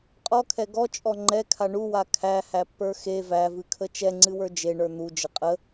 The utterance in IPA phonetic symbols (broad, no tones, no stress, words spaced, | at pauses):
qʼɔkʰɛ ɡɔt͡ʃʼɔ ŋ͡ǃɛkʰa ɳuwa kʰæhæpːə˞ xe vævɨkʰə t͡ʃɛŋ͡ǀɨwə˞ d͡ʒeɳə˞ n̪ud͡ʒə qʼə